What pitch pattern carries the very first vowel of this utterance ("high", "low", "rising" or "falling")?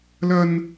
high